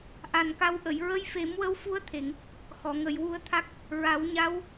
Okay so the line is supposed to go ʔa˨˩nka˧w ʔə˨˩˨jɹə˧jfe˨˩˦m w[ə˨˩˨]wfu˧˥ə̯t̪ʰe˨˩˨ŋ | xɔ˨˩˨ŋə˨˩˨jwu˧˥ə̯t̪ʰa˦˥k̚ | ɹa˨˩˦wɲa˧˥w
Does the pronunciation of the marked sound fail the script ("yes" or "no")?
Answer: yes